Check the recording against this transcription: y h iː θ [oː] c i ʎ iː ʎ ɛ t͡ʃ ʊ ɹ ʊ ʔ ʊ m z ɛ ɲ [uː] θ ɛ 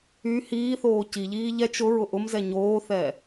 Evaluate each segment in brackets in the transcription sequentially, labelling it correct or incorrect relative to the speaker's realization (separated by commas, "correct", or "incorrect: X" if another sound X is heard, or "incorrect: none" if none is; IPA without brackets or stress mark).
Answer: correct, incorrect: oː